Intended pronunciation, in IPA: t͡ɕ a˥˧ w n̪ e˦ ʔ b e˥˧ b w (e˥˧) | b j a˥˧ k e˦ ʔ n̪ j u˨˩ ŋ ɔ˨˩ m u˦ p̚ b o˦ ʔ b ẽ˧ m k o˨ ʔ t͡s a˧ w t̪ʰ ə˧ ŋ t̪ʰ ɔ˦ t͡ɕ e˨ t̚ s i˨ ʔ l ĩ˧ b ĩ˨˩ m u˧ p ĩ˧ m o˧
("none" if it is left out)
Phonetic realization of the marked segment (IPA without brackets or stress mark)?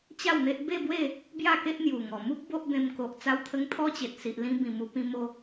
e˥˧